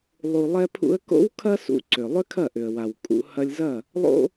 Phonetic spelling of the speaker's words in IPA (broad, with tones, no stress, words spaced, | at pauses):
lˠu˨lˠɛ˧pʰṵ˧ə̯ko̰˦w kʰɐ˦sṵ˧ ǀʏ˨ lˠʏ˦kʰɐ˦˨ʔʏ˨ə̯wa˨w kʼṵ˧ hɐ˧lʲzɐ˦˨ | lˠo̰˦